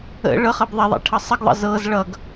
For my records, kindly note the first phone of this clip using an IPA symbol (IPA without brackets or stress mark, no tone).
ə̰